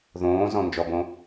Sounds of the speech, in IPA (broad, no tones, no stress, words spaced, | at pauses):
ðõːzɔ̃ nd͡ʒɔbõ